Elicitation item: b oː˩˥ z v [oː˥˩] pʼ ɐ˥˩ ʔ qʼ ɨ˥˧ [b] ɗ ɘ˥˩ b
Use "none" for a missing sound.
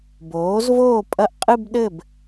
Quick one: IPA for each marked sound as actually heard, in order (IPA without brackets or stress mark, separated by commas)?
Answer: oː˥˩, b